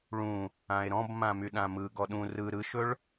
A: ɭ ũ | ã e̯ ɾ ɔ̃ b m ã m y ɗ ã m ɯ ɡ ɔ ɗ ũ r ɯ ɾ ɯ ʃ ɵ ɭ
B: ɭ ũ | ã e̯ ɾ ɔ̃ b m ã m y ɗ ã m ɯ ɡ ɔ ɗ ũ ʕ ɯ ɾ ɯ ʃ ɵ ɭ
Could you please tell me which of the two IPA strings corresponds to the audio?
A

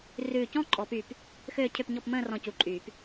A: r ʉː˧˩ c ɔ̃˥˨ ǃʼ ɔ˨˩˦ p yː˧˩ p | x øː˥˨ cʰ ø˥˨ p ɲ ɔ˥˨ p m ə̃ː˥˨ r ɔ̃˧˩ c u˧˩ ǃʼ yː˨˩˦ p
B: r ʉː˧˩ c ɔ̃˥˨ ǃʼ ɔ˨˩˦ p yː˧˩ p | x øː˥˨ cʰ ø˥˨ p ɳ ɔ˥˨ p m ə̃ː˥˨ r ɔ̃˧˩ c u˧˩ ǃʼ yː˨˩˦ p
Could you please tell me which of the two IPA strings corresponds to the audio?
A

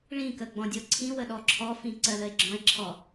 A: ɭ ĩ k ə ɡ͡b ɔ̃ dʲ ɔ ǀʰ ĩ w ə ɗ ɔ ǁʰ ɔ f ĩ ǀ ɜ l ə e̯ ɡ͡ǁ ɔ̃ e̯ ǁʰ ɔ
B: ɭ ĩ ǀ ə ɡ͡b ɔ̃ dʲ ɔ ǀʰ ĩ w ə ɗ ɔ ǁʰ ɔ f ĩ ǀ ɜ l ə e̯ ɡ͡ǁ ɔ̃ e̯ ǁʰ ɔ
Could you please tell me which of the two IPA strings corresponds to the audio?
A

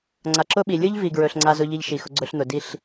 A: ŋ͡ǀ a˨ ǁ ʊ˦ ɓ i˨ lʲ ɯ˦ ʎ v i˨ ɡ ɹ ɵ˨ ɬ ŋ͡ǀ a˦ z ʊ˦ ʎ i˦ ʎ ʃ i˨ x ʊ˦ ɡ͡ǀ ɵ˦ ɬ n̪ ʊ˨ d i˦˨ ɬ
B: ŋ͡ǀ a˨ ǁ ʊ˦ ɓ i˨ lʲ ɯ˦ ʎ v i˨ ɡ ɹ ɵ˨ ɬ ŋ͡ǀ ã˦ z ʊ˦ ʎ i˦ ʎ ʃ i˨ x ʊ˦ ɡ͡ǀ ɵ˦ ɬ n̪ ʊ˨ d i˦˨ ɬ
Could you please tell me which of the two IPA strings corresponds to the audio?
A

